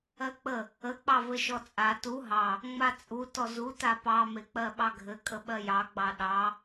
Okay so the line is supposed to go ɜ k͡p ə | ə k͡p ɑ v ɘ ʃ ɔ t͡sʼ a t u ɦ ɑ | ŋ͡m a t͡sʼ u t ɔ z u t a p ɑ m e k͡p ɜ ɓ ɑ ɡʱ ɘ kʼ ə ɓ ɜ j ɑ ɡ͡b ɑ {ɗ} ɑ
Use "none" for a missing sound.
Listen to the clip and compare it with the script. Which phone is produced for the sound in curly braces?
ɗ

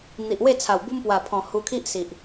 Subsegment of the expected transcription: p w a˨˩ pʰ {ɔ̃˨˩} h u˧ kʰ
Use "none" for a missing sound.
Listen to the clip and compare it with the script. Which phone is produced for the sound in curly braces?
ɔ̃˨˩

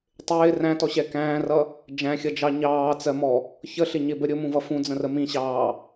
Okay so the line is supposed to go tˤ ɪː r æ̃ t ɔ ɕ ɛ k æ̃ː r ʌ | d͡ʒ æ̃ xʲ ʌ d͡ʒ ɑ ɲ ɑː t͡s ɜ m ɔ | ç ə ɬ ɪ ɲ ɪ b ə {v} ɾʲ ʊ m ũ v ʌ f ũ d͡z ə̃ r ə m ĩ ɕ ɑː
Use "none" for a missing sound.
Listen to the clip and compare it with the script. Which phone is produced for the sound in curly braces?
none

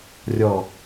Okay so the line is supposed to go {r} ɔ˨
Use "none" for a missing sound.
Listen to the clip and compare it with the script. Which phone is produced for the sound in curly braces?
rʲ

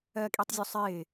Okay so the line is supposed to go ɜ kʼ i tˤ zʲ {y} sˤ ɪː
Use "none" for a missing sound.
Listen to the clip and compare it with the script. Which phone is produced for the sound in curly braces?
u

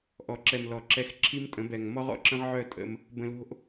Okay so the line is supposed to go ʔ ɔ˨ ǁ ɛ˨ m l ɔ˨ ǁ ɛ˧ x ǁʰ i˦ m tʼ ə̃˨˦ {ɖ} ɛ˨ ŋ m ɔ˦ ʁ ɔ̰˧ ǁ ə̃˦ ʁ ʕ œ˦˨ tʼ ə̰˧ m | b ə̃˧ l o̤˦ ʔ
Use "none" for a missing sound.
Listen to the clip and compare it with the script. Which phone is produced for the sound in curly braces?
b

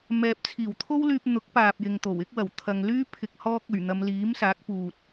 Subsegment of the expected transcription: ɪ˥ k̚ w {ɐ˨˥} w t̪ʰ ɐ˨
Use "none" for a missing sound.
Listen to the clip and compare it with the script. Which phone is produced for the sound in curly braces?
ɐ˨˩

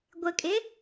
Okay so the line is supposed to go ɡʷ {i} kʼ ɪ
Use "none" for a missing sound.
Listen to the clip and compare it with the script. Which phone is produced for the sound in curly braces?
ɪ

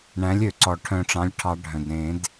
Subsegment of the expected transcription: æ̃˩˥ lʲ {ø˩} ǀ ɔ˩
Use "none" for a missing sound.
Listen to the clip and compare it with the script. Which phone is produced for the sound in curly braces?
ø˩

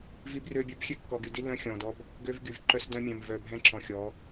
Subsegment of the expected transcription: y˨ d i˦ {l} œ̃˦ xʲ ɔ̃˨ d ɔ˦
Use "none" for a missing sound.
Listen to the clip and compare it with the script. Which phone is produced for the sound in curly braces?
l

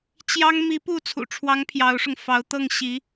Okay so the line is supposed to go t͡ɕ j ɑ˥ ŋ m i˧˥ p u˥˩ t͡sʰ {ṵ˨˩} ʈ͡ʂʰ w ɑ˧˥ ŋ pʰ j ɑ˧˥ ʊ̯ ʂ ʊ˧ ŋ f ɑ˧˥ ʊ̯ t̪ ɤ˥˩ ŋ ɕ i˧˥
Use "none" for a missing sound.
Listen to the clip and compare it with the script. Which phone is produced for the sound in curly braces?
ṵ˨˩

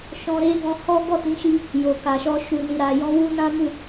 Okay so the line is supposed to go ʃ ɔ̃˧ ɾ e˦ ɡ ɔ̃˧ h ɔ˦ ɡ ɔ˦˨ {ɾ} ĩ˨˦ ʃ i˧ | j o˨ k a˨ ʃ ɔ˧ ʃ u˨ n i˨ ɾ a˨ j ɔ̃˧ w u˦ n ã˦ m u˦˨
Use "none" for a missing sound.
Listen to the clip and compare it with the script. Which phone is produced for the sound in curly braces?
t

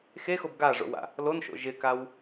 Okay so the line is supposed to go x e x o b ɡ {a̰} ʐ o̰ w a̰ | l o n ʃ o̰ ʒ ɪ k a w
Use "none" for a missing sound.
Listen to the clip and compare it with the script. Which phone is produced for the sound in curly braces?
a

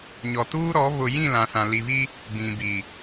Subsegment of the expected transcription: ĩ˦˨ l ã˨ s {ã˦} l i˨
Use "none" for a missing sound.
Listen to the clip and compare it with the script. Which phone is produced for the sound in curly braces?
ã˨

